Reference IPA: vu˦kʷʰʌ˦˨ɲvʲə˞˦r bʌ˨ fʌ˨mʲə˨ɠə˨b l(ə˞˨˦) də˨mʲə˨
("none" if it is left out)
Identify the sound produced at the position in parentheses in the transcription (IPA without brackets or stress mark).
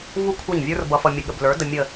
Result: ə˞˨˦